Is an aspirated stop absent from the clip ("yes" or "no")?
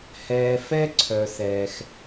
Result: no